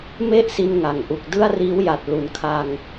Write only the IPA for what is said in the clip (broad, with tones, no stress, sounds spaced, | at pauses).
m e˥˩ ʔ s i˧ n ŋ a˨˩ ŋ ʔ u˨˩ k̚ d ɯ˥˩ a̯ r iː˦˥ w j a˨˩ t̚ l u˨˩ n kʰ a˧ ŋ